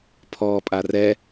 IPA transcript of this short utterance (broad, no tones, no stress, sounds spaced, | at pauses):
pʰ ɔː pʼ a r ɛ